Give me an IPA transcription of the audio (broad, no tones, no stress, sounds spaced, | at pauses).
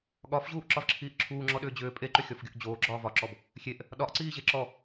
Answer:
ɠ ɒ f ʑ uː ʔ ǁ ɒ v ǁʰ iː ʔ ǁʰ uː ŋ͡ǁ ɔ ɗ ʏː d͡ʑ ʏː pʼ e ǃ ʏ xʲ ɔ f ɡʲ o ʔ d͡ʑ oː ɡ͡ǁ ɒː v ɒ ǁ ɔ b | xʲ e ʔ | ɗ ɒ ʔ ǀ iː ʑ e ǁ ɔ